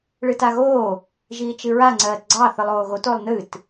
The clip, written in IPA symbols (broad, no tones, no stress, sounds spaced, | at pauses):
ɭ ɨ t a ɣ oː | ʒ iː t͡ʃ ɨ ɹ a ŋ͡ǀ ɜː t ɡ͡ǀ ɑ θ ɨ lˠ oː ɣ o t o lˠ n ɨ t